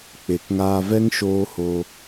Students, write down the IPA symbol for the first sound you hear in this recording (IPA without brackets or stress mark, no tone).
k͡p